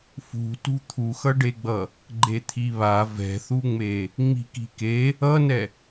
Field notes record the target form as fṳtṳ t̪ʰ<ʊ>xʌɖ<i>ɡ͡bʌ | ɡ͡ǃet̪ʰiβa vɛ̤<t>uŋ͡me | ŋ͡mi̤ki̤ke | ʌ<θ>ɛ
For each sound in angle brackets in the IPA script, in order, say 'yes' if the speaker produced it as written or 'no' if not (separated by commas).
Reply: no, no, no, no